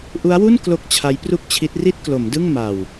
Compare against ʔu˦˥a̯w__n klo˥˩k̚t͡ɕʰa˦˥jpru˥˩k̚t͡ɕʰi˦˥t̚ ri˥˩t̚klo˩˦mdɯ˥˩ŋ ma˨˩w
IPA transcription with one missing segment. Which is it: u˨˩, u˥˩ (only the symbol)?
u˥˩